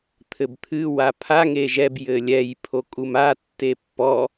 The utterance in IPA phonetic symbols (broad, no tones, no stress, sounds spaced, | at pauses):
t̪ʰ ɘ b t̪ʰ ɨ w a pʰ a ŋ e ʒ ɛ b j ɘ lʲ ɛ j pʰ o kʼ u m a tː e pː ɔ